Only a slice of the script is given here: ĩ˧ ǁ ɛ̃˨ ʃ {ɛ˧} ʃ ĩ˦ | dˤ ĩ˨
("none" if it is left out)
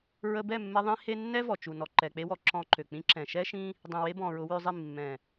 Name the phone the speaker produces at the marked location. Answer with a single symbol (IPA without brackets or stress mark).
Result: ɛ˦